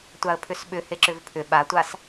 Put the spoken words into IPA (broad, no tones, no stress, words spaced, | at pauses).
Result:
tʷaə̯pʰʏsɓʏ heǁʏvpʰʏ ɓatʷas